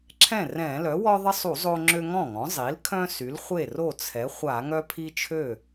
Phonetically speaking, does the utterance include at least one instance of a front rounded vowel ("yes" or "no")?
yes